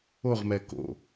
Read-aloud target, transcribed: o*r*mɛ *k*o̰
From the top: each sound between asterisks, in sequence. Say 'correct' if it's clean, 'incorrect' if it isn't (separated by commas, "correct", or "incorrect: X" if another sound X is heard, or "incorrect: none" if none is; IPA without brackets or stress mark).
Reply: incorrect: ʁ, correct